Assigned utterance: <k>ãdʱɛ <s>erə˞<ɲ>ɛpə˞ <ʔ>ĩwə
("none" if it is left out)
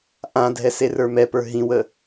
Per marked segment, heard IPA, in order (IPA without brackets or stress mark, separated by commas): ʔ, s, m, ɦ